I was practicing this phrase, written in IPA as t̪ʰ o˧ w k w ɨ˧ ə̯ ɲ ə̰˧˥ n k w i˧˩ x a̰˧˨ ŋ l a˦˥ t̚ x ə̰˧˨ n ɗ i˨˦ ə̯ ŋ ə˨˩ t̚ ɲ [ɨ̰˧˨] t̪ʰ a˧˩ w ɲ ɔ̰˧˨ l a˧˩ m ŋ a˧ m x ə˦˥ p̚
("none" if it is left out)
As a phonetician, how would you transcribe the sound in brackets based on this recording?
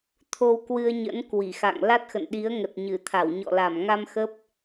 ɨ˧˩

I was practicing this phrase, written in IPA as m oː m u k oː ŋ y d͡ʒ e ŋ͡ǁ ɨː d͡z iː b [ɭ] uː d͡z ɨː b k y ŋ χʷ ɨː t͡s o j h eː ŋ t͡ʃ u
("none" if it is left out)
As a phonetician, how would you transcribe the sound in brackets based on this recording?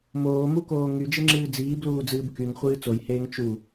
l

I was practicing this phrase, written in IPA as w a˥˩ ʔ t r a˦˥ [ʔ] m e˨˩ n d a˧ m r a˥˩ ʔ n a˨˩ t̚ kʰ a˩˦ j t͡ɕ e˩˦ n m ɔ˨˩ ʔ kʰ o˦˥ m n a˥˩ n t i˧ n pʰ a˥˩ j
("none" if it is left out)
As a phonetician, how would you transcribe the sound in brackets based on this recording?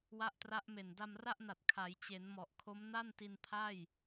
ʔ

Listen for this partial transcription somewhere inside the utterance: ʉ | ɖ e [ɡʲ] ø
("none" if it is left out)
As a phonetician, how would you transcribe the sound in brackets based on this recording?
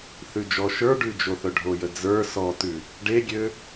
ɡʲ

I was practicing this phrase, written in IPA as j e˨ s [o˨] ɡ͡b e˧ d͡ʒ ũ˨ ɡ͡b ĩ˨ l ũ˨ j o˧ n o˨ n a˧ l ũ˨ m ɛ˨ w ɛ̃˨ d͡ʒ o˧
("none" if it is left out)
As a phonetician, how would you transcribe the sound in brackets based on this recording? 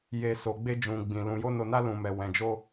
o˨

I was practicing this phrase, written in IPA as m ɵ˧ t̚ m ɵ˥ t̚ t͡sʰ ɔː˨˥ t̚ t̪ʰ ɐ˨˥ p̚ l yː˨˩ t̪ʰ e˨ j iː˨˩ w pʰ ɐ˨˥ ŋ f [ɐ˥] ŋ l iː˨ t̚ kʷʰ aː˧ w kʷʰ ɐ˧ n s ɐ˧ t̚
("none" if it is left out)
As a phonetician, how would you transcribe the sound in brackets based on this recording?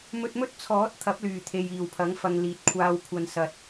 ɐ˧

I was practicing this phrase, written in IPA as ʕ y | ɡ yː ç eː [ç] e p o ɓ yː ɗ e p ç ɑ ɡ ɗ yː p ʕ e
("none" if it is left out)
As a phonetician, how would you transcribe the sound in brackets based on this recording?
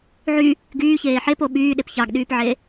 ħ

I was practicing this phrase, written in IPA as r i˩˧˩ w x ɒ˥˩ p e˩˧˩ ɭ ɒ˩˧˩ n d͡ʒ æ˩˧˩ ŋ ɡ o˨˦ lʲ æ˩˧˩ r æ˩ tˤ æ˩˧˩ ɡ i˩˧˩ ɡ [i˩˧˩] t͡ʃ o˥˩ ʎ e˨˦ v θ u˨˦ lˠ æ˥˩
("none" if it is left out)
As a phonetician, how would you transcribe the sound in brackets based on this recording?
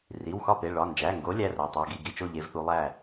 i˩˧˩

